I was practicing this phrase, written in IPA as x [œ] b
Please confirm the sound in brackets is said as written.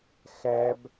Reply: no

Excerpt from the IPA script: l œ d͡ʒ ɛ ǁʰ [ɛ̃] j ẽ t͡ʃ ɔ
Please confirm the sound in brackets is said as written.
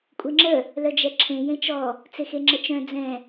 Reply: no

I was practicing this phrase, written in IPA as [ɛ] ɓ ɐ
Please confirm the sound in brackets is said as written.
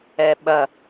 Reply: yes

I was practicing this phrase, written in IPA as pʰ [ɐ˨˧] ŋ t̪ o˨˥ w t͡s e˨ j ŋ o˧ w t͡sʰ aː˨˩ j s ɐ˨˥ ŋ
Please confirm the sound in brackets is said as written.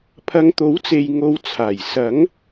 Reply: yes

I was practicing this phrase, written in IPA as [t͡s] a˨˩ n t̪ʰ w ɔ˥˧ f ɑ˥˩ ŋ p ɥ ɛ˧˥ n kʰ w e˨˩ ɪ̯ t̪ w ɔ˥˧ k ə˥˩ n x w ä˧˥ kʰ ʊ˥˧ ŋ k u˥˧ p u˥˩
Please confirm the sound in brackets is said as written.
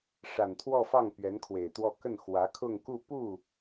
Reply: no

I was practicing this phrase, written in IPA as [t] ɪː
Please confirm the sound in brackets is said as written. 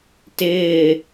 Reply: yes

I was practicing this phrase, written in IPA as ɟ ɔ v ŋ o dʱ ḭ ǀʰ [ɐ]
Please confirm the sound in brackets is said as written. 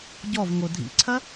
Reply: yes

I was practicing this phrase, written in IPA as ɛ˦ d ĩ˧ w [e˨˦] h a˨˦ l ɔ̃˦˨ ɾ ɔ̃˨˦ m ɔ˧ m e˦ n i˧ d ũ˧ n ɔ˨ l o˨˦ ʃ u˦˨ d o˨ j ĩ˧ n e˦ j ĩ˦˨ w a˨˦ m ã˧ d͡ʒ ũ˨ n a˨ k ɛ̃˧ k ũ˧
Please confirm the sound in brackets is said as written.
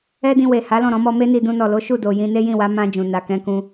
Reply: no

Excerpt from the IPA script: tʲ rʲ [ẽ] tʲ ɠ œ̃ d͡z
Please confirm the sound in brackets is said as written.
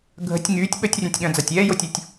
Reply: yes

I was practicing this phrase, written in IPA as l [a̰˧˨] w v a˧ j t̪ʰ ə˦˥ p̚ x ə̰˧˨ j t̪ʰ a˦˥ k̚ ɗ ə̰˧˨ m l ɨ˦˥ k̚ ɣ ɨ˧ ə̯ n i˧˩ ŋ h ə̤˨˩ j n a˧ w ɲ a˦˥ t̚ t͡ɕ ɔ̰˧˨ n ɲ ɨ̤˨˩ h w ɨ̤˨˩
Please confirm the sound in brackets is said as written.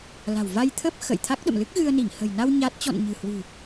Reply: no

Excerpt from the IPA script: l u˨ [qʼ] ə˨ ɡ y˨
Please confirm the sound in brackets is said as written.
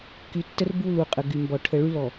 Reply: yes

